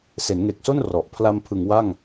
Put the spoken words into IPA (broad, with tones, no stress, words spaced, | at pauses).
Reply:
se˩˦nŋe˨˩k̚so˥˩n rɔ˨˩ʔ pʰla˧mpʰɯ˩˦ŋ wa˥˩ŋ